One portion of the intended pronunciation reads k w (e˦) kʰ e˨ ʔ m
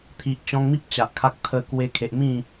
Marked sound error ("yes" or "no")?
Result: yes